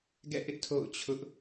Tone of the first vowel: falling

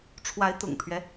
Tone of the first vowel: rising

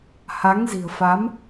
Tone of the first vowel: rising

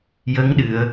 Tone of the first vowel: rising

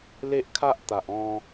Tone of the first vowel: high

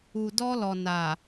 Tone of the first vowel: low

